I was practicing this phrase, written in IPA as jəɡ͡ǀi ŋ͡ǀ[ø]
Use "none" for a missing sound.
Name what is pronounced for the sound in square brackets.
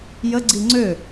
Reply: ø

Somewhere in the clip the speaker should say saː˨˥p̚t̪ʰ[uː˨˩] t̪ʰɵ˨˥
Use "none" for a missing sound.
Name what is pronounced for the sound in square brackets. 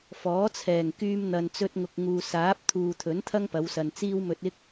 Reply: uː˨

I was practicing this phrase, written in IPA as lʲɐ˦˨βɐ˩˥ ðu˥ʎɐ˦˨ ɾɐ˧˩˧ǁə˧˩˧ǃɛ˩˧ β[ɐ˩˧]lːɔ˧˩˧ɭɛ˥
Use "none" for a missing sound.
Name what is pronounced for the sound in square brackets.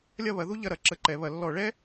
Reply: ɐ˩˧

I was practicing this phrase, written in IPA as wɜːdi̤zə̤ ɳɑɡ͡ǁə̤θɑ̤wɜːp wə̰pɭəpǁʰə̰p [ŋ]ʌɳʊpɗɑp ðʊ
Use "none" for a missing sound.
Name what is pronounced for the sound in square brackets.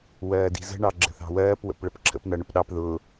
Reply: n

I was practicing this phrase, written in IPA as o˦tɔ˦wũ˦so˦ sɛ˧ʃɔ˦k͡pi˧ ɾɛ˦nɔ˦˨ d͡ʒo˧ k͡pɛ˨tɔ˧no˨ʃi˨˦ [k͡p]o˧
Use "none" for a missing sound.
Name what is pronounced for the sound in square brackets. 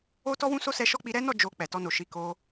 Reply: k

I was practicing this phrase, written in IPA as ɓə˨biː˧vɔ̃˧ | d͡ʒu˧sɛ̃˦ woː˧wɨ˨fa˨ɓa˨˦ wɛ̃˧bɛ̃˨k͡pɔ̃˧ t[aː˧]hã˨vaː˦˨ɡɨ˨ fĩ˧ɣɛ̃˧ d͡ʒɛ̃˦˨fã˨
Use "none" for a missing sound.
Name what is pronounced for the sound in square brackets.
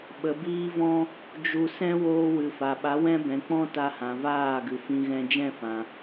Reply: a˧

